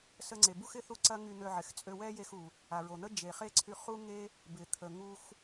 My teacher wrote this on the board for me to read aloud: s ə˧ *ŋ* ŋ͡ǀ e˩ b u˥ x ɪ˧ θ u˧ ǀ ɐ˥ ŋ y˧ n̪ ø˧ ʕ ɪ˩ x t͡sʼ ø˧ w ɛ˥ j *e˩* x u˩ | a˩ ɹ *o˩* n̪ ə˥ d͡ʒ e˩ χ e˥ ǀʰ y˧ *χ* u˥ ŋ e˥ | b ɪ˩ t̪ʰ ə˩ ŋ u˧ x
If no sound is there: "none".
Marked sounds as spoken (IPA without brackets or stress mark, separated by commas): none, e˧, o˩, χ